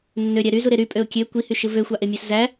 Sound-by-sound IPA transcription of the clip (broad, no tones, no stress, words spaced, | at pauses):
nːøɾʲæ ɾyzuɾe ɾypʼøʊ̯ kʲø kʷihyʃɯ vøxʷɑʔemʲæs zæ